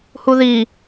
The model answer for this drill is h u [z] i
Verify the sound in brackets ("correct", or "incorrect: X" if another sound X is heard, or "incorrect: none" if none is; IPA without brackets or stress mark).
incorrect: ð